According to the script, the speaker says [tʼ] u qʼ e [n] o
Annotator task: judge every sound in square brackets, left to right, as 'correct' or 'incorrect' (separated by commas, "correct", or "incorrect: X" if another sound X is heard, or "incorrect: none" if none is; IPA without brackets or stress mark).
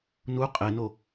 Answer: incorrect: n, correct